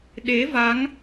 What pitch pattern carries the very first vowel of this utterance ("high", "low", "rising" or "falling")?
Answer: rising